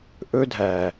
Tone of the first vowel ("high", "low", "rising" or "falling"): high